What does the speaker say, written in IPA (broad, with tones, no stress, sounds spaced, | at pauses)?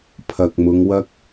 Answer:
pʰ ɐ˨ k̚ m ʊ˨˧ ŋ w ɐ˥ k̚